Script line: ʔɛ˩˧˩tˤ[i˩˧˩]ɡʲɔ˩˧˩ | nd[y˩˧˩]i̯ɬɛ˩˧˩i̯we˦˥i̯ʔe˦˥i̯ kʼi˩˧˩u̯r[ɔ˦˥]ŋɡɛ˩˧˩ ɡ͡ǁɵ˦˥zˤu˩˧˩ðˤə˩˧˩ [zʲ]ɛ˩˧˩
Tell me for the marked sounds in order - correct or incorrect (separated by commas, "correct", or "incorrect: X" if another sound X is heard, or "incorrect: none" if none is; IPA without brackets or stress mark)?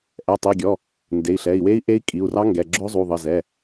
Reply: correct, incorrect: e˩˧˩, incorrect: ɑ˦˥, incorrect: z